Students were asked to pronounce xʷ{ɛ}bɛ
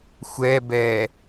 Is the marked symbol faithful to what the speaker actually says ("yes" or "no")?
yes